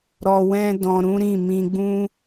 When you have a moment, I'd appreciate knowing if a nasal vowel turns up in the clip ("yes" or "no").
yes